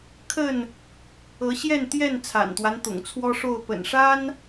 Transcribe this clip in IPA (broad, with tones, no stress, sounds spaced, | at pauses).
kʰ ə˥˨ n | ɤ˨˦ ɕ j ɛ˥˨ n t̪ j ɛ˥˨ n t͡sʰ a̰˨˩ n t̪ w a˦ n t̪ ʊ̰˨˩ ŋ t͡sʰ w ɔ˦ ʂ o˥˨ ʊ̯ p ə̰˨˩ n ʂ a˦ n